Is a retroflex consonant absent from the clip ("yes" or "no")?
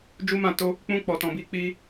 yes